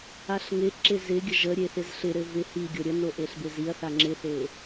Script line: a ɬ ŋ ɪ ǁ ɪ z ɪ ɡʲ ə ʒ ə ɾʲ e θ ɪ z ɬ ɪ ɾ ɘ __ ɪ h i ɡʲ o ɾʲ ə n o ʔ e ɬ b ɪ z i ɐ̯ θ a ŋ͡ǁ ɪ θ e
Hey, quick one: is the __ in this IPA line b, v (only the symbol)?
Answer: v